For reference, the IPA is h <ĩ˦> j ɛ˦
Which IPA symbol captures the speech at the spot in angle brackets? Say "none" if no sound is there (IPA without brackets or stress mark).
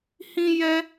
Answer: ĩ˦